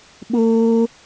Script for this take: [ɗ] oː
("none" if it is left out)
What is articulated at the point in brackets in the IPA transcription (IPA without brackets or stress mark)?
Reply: ɓ